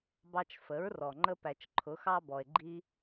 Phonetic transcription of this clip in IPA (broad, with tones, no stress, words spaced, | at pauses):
bɑ˧t͡ʃ fə˩˧ɹrɔ˩ ŋ͡ǃə˧pæ˩t͡ʃǃʰʊ˩˧ xɑ˧bɔ˩e̯ɡ͡ǃi˧